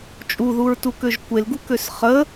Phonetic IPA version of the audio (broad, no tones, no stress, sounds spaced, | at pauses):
t͡ʃʼ u ð u ɹ t u k ø ʒ kʷ e l ɡ u k ø s χ ə